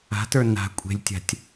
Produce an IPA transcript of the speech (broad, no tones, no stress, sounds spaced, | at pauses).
a̤ t ə˞ n a̤ kʷʼ e̤ lʲ tʲ a̤ tʲ